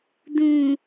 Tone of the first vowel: low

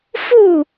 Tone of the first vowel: falling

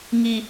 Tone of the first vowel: high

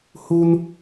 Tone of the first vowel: high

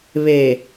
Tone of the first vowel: low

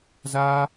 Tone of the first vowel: high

